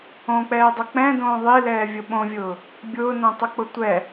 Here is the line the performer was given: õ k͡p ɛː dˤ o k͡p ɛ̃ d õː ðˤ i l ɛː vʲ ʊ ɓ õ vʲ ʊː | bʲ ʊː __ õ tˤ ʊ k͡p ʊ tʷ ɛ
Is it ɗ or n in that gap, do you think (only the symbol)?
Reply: n